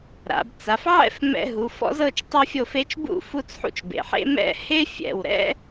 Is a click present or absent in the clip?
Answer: absent